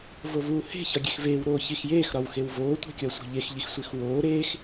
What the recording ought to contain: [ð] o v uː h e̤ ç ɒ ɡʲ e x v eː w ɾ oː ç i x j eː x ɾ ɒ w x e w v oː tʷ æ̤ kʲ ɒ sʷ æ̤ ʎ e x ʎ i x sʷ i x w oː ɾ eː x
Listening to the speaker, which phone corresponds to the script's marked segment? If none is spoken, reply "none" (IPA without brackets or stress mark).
v